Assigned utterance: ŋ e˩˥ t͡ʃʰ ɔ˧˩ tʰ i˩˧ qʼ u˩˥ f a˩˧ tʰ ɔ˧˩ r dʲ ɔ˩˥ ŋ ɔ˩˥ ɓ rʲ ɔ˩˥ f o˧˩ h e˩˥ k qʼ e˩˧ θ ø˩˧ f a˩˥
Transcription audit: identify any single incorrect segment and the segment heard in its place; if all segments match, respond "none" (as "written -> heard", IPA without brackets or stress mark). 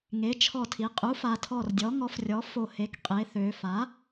ɓ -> f